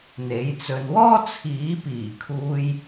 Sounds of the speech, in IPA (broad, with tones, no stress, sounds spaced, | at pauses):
n̪ e˨˥ j t͡s ɵ˧ n w ɔː˥ t͡sʰ iː˨˥ p iː˨˩ kʰ uː˧ j